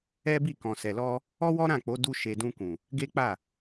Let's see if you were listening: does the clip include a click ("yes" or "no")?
no